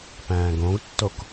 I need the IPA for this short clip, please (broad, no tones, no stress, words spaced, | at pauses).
pæ̃ːɡõɡtːok